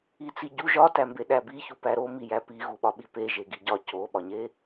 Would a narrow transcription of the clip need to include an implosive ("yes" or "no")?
yes